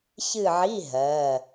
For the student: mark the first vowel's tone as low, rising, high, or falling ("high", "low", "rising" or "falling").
falling